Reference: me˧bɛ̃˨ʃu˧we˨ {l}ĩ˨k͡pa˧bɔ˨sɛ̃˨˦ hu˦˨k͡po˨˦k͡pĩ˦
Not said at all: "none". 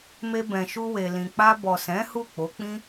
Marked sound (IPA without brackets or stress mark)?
l